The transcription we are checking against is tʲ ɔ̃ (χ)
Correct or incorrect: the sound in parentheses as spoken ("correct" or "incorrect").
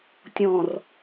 incorrect